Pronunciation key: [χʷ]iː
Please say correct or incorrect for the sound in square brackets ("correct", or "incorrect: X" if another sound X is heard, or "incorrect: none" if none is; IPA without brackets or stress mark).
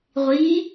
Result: incorrect: ʁʷ